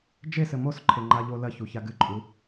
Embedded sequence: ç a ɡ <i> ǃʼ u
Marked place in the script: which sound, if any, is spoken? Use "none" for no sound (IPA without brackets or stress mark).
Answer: ɨ